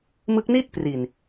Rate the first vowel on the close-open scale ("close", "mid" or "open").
close